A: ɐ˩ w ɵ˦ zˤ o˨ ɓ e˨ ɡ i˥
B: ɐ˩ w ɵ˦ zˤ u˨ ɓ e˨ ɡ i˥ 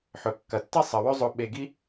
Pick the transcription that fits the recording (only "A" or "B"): A